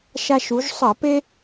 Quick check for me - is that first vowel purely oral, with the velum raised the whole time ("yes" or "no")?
yes